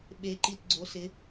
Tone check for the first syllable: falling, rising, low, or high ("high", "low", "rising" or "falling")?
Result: rising